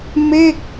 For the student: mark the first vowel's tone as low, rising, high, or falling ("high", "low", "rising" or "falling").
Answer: falling